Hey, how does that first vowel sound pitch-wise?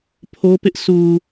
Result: high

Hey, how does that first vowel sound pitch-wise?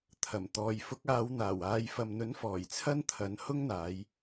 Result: low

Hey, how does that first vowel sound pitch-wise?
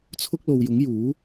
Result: high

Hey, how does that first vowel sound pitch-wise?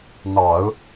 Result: low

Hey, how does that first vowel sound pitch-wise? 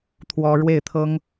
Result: high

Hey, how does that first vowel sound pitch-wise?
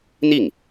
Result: falling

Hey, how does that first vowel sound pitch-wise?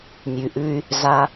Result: low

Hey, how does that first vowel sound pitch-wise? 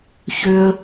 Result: high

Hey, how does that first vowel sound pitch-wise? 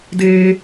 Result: high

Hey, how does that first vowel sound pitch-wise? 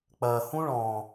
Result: low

